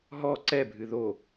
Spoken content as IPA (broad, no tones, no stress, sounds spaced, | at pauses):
ɦ ɔ ǀ ɛ bʱ ɨ ð o